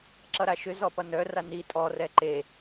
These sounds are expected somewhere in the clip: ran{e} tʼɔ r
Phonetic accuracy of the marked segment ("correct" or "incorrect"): incorrect